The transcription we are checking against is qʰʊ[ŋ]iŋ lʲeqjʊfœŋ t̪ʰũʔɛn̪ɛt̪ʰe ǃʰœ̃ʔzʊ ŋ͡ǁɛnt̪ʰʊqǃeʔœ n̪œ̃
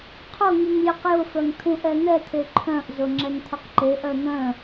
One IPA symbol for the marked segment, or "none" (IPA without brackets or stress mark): ŋ